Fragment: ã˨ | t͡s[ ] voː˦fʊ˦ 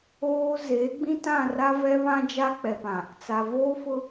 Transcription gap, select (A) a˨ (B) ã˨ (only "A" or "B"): A